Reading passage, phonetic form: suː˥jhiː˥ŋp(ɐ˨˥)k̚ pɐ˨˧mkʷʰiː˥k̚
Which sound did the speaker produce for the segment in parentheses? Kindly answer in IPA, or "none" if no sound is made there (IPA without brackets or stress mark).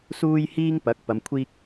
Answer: ɐ˨˥